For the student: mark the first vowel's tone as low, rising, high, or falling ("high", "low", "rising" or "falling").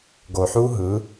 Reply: low